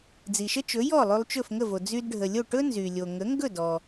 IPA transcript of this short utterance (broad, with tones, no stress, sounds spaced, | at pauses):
d͡z i˩ ʃ ə˥ t͡ʃ ɵ˩˥ j ɔ˥˩ lˠ y˧ lˠ t͡ʃ ɵ˥˩ f ŋ ə˥˩ v o˩ d͡z y˧ d ɖʱ ə˩ lʲ o˥˩ ʈ ɵ˥ n z y˩ lʲ o˩ ŋ ə˩˥ ŋ ɡ ɵ˥˩ d ɔ˩